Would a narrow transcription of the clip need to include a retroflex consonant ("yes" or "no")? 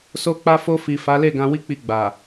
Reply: no